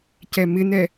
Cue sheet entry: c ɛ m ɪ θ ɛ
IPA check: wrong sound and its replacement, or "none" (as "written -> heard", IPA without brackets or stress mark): θ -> n